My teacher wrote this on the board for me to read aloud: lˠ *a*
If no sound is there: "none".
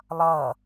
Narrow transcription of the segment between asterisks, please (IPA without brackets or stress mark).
ʌ